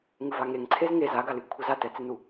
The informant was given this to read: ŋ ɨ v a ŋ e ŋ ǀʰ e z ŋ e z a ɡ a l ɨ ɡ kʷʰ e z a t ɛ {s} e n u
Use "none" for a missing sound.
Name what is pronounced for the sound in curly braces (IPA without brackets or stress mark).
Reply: t͡s